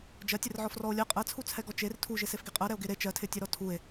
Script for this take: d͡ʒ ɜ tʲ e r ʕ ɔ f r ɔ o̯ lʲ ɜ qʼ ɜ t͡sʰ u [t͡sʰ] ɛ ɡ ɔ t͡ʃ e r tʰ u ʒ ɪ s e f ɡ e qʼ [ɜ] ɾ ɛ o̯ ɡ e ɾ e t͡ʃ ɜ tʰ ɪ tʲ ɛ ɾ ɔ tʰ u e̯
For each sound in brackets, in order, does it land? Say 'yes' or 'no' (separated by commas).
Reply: yes, yes